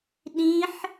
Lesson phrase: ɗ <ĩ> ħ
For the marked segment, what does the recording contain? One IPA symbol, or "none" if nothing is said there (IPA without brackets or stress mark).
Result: ĩ